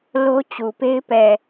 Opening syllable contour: high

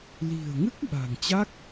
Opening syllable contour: low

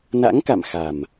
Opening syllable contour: rising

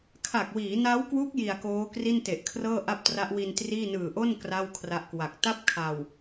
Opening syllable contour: low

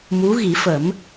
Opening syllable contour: rising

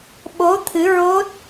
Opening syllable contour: rising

